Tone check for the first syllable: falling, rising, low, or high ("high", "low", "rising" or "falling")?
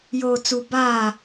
low